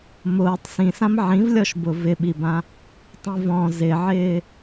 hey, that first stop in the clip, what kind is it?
plain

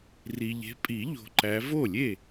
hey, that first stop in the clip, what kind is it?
ejective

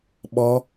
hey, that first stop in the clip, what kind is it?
implosive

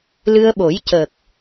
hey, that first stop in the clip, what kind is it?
implosive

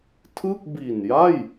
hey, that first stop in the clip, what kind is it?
aspirated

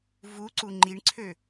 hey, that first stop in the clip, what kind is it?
click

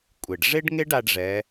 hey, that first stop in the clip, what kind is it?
ejective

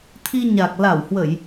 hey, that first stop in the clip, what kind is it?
aspirated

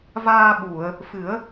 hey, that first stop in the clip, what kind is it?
implosive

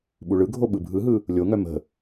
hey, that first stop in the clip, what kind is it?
implosive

